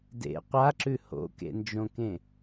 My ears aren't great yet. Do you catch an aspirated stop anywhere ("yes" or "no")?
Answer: no